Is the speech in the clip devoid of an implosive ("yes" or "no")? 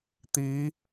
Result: yes